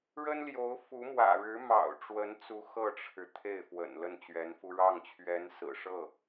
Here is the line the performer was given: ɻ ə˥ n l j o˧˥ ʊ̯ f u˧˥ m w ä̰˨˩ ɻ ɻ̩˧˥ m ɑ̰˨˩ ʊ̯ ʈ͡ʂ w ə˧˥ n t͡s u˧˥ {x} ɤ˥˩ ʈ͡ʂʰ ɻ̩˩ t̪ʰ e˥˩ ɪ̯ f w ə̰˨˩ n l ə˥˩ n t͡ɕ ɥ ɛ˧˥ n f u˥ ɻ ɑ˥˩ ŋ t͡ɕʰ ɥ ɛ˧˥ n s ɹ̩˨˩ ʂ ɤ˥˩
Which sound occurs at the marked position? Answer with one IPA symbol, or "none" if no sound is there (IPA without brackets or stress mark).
x